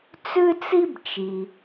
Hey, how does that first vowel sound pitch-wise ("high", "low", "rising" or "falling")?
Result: high